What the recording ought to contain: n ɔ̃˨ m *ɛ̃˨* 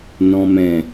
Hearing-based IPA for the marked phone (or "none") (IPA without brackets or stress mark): ɛ̃˨